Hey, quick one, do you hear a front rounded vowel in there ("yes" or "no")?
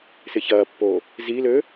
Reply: yes